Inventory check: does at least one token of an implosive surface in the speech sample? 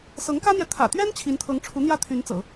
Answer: no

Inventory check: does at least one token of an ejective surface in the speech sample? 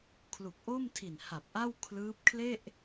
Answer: no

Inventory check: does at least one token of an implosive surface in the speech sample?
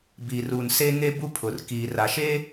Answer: no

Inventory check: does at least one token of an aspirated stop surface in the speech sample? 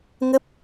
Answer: no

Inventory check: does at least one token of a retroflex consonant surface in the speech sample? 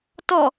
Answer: no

